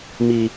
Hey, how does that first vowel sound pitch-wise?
low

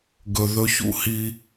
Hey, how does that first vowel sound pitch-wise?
low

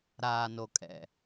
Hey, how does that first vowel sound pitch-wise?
low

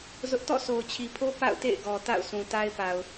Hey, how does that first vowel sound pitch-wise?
high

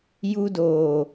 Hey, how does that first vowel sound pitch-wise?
high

